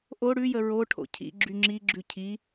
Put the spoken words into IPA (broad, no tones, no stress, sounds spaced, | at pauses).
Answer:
ʔ o ɽ ʉ j ə ɹ o ʈʰ o̰ cʰ ḭ ɡ͡ǁ y ŋ͡ǁ i ɡ͡ǁ ʉ cʰ i